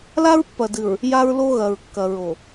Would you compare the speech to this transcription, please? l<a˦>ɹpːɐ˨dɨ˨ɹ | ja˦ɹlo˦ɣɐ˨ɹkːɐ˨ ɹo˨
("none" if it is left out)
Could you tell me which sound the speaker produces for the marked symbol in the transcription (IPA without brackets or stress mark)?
a˦